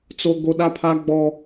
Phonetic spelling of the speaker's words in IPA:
t͡so˦ɡo˦ ɗa˦pʰa˦ɡ͡bɔ˦

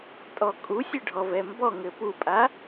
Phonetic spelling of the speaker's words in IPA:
tʼɔkʼu sʲɘɖʱɔvɛmbɔ ŋɘpupʼa

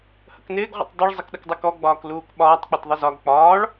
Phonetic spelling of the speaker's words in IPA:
hə̰knɪːɡ ʁʷə̰tˤdˤʊɭ zˤəkɗəkdˤəkɔ ɡ͡bɒːkluːkɓɒːtˤ k͡pɪtðˤəzɒɡ k͡pɒːɭ

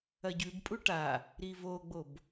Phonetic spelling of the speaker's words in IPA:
ɐɟʉbpʼu ʈa | ɾivoɡ͡bob

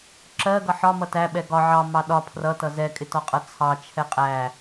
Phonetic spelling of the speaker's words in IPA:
ǁɜɡʌ ħɒmʌ tæɓɛ ɡɒ ʕɑmɑ ɗɒ pʰrʌtʌ zɛkʼɪtɒqʼʌ t͡sʰɑt͡ʃʰɛ qʼæ

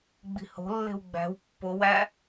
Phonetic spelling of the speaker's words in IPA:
ɡ͡bi̤ho̤lːe̤w ɡ͡bæ̤w pːowæ

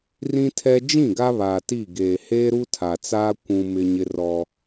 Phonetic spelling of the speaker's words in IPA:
rĩ˦tʰɛ˦ d͡ʒĩ˦˨ɡa˦ βaː˨ti˦˨ɡeː˨ heː˦ɾu˦tʰa˨t͡saː˦ kʷũ˦mɪ˦ɲɪ˦rɔ˦

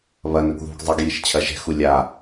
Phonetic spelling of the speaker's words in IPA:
βɐnɵɡ ðṳɡ zˤɐɡ jiʃt͡ɕʰɐʒɛ̤xu lʲa

